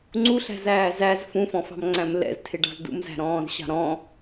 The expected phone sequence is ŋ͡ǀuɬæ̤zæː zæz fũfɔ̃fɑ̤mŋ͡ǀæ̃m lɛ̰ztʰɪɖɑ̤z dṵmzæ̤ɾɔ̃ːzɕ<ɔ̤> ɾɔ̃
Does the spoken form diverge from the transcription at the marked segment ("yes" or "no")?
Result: yes